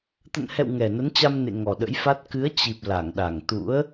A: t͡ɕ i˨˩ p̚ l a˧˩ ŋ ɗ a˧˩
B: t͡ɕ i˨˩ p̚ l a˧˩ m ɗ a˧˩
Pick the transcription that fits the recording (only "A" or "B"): A